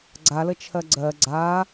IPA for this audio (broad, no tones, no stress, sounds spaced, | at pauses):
ɡ͡ǀ a l ə t͡ʃʰ ɜ ɡ͡ǀ ɜ ɡ͡ǀ a